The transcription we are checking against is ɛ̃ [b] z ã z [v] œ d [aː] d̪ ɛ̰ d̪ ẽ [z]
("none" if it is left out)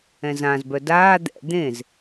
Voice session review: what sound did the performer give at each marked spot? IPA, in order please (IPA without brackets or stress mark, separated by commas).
none, b, aː, z